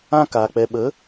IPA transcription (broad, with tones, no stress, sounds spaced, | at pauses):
ã˦ k a˨ k͡p ɛ˨ ɓ ə˨˦